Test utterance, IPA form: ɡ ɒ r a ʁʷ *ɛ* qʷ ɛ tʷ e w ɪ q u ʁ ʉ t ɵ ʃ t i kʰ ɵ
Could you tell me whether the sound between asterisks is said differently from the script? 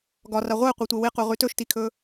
no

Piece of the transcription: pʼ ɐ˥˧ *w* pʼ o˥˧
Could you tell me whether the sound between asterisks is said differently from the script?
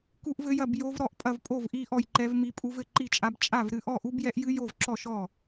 yes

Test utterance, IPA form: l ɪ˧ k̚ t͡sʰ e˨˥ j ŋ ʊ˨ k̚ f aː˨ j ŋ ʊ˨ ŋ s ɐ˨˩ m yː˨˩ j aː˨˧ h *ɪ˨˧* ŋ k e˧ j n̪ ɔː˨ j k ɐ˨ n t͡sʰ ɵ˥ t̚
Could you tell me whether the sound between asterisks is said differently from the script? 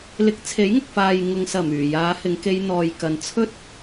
no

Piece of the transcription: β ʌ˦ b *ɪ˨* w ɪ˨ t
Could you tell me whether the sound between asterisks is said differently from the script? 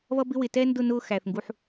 yes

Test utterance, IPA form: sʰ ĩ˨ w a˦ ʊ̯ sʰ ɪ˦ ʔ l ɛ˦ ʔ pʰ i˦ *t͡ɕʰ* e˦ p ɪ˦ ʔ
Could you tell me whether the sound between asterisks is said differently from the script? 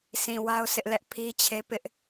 no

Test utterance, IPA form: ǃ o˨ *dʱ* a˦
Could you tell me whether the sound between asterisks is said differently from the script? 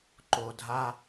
no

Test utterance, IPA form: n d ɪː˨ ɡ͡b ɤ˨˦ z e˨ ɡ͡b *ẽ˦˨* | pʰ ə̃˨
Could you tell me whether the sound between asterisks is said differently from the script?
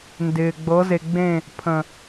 no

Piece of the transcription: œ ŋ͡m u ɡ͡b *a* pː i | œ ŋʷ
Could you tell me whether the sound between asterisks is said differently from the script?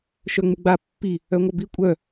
no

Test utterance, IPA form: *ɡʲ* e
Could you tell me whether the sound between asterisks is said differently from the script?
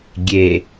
no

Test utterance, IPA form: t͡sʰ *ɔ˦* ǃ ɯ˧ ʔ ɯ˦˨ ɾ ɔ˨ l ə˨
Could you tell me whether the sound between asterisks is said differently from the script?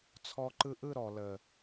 yes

